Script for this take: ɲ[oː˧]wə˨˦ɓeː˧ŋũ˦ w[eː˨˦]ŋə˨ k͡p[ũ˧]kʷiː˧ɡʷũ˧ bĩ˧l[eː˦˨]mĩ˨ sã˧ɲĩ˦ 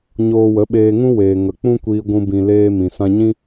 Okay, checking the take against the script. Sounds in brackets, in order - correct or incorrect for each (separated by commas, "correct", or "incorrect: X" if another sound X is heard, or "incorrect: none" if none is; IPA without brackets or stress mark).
correct, incorrect: eː˨, incorrect: ũ˦, incorrect: eː˦